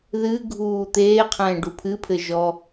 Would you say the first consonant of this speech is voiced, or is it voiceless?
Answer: voiced